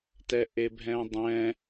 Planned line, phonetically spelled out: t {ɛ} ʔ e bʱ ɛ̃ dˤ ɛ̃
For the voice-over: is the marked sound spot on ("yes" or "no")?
yes